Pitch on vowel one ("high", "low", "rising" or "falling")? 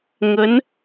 rising